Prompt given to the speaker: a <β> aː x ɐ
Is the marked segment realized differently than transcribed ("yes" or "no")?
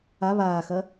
no